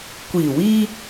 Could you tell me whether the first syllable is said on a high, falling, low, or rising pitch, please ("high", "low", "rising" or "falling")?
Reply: low